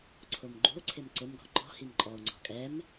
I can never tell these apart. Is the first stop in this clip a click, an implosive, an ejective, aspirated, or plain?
click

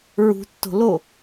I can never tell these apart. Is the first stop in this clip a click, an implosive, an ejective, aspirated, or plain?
plain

